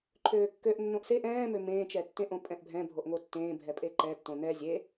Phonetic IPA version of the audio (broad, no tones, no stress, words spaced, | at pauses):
ǃʰøːkːøʔnːõʔ seʔ ɛ̃ːmø mẽːt͡ʃɛtːẽʔõ pʼɛ̃ʔbʱɛ̃ bʱoʔŋotːẽː bʱɛpʼeǃɛtːõ nɛ zʲe